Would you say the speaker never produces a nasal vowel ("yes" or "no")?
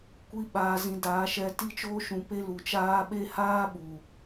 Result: no